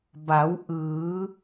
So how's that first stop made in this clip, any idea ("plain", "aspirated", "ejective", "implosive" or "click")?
plain